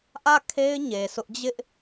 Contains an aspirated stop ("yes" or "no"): yes